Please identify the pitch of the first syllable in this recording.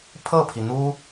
falling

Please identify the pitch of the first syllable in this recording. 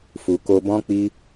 low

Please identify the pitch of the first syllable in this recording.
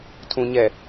low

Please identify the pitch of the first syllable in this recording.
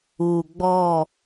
low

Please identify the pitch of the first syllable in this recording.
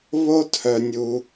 high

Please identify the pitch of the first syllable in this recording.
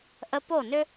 high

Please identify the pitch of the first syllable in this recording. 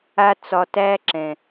high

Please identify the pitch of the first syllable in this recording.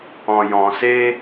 low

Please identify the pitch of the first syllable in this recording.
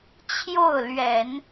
falling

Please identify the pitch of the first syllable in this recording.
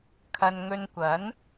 low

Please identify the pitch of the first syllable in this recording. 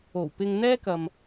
low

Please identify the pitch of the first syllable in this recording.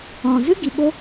low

